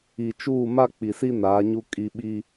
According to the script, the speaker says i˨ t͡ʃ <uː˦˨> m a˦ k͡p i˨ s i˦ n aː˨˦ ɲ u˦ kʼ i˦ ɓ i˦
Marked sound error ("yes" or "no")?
no